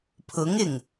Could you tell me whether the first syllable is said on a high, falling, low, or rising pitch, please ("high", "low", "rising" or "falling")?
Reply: rising